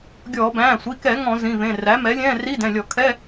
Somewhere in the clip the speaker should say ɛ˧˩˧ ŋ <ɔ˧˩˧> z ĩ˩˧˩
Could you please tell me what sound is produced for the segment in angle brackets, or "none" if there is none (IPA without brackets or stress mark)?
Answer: ɔ̃˧˩˧